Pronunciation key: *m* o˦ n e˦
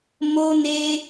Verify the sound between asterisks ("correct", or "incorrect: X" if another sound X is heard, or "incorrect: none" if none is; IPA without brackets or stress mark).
correct